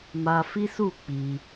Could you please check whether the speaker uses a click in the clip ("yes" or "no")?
no